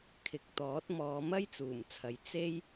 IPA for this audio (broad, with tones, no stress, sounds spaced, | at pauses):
kʰ ɪ˨˥ k̚ t̪ ɔː˨˥ t̚ m ɔː˨˧ m ɐ˥ j t͡s uː˨˩ m t͡sʰ ɐ˨ j t͡s e˥ j